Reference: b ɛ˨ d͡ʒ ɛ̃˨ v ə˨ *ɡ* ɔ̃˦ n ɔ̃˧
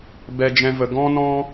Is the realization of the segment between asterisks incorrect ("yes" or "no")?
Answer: no